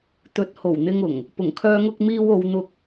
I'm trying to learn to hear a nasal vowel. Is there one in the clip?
no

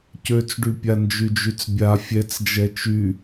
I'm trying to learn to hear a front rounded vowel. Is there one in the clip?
yes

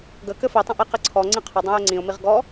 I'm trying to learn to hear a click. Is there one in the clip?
yes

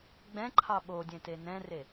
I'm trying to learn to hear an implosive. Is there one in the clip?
yes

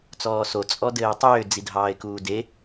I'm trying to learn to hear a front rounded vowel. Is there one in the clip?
yes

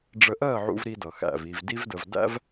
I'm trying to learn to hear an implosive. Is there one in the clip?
no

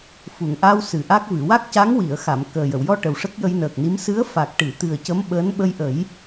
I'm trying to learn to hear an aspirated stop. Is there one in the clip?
no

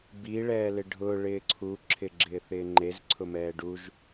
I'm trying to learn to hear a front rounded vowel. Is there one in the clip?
no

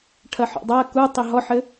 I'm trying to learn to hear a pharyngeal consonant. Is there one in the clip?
yes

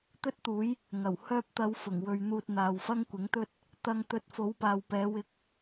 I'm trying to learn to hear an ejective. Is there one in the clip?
no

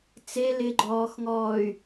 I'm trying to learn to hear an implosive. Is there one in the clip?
no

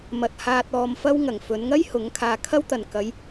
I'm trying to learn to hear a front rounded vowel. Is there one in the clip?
no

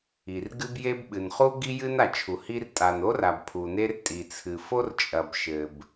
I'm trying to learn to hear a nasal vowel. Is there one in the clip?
no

